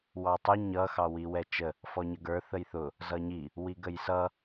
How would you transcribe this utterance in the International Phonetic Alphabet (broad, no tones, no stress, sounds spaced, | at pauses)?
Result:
w ɑ tˤ u ɲ ʌ x ɑ w i w ɛ t͡ʃ ə | f ɔ ɲ ə ɡ ə˞ θ ə j θ ʊ | z ʌ ɲ i | w i ɡ ə j s ʌ